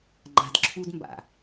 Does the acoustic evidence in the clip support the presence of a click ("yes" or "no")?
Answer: yes